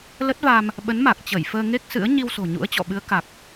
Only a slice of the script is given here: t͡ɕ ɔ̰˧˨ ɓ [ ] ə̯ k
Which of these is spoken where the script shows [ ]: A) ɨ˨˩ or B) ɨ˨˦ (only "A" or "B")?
B